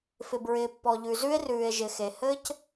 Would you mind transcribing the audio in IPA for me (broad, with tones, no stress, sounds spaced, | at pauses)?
f ɪ˧ b ɹ ɪː˧ pː ɔ˧ ʎ ʉ˧ z ʉ˥ e̯ r ʉː˧ e̯ ʒ ɪ˧ x e˧ h ɘː˥ c